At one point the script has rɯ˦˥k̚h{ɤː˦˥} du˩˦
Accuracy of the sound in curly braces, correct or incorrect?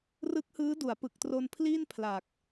incorrect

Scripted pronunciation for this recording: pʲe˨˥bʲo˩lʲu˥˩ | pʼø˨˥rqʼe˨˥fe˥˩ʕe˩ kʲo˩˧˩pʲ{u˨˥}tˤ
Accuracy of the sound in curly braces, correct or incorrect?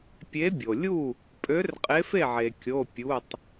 incorrect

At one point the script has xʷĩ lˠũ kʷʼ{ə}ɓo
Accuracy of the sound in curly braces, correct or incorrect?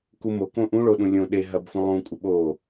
correct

